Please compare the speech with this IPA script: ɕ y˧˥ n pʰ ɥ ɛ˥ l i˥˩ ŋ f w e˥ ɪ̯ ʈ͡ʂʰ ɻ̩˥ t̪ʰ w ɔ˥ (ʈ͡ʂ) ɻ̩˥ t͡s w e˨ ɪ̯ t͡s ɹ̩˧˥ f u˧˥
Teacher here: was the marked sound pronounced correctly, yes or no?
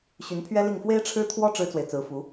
yes